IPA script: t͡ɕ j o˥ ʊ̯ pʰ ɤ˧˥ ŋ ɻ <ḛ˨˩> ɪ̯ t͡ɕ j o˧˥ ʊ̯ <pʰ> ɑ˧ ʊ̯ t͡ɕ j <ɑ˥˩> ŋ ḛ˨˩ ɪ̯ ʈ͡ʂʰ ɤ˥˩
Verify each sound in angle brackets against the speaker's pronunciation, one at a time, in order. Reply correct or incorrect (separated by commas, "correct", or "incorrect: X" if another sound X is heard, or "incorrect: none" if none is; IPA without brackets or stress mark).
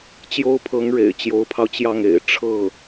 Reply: correct, correct, correct